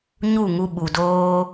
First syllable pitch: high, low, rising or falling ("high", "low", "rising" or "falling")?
falling